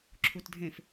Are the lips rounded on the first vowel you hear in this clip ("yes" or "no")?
yes